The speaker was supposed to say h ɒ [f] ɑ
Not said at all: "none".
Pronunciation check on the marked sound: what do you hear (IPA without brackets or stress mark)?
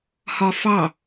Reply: f